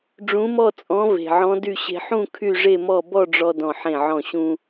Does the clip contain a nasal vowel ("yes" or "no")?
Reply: yes